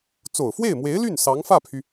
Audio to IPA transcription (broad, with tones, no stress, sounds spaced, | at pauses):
t͡s o˨˩ ʊ̯ f w e˥˩ ɪ̯ m w e˧˥ ɪ̯ l y˥˩ n s ɑ˧˥ ŋ f ä˥˩ pʰ y˩